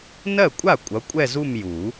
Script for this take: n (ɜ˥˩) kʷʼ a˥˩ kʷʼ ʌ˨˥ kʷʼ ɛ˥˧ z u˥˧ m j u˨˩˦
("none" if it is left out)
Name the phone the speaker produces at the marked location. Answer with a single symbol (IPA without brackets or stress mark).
ɜ˥˩